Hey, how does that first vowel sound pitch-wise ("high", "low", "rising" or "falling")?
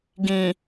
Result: low